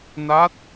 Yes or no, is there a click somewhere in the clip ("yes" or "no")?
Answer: no